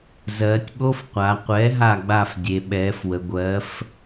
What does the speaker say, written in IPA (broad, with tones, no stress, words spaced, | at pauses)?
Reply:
zɜː˩˧tʲɓo˧˥˧fqʷa˩˧ qʷɛ˩˥ɦa˧˩ɡ͡ba˧˩f dʲe˩˧ɓɛː˩˥fwə˩˧ ɡʷɜ˩˥f